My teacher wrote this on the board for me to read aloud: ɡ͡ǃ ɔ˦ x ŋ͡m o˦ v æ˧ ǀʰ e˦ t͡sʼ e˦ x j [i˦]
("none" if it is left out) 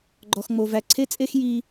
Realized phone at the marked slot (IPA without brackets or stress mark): i˦